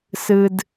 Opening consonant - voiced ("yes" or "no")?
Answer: no